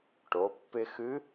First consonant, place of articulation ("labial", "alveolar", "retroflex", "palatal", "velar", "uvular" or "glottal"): retroflex